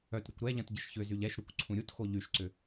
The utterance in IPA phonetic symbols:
œtɾʏkʷ ɾɛʎɐ̃t ɟəʃçʏzyʎ ɛʃɾukʷ ǀʰũɾʲutxo ʎyʃǀʏ

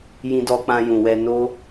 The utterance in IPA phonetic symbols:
jĩ˧dɔ˧k͡pã˧jũ˨ wɛ˧no˦

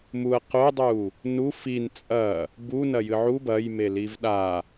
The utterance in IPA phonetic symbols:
muɐ̯ qodˤu | nu fin t͡sʼɐ | bunɐjɨ ʕu bɐjmeliv ɗa

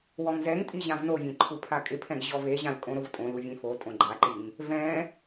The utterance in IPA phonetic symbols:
wɔŋzɛŋtʼi ʑãvnovʲẽ ǃʰupʰakʼɪpʰɛ̃ɡ ʑɔveʑãl kʼõɾʊvtʼõlu vʲẽfotʼõ ɡ͡ǃaǃiŋ | vɛ̃

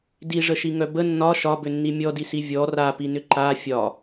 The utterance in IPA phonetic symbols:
diʐəʃiŋœ bə nːɒ ʃɒbʏnːi mʲɔdisi vʲɔ rapinʏ ǃa fʲɒ

